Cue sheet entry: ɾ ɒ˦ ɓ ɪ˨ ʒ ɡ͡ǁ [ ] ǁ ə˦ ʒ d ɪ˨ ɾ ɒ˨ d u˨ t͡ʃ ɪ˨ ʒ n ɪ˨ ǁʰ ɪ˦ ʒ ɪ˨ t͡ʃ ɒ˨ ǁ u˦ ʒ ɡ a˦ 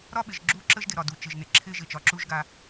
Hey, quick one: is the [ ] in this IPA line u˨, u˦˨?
u˦˨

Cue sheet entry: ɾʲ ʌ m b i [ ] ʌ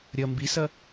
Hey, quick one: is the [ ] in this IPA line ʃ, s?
s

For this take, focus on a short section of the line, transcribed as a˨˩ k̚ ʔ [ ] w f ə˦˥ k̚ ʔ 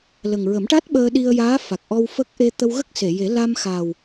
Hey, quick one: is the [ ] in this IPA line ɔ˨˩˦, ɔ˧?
ɔ˧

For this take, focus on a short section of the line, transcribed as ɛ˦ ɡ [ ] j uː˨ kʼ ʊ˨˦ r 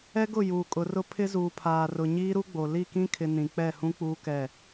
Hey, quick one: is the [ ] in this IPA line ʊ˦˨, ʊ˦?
ʊ˦˨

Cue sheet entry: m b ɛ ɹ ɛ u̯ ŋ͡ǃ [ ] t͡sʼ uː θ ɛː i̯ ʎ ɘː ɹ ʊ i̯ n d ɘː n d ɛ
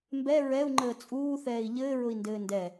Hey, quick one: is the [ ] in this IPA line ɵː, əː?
əː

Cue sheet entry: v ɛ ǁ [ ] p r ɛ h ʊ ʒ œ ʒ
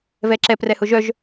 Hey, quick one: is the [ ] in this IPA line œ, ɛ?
ɛ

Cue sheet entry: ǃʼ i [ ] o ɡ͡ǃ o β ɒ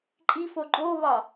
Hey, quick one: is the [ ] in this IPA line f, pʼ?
f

